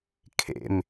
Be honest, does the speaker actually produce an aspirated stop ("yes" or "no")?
yes